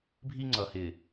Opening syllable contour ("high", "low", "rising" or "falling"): high